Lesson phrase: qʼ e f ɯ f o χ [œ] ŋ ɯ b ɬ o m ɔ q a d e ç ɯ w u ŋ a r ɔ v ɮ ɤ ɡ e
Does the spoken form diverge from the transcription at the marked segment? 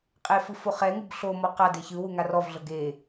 yes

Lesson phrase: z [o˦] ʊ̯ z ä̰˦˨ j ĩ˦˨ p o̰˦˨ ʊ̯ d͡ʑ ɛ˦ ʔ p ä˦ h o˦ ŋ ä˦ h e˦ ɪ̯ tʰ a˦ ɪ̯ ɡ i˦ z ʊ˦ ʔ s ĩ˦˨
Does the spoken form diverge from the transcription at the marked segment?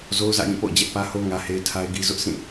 no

